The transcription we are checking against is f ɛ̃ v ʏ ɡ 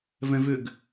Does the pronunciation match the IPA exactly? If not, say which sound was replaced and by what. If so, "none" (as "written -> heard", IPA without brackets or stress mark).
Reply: f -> v